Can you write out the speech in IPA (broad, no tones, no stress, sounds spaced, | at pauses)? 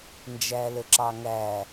n d͡ʒ æ l ə ǁ ɑ ŋ æ